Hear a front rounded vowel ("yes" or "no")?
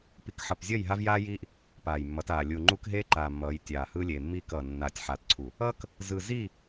no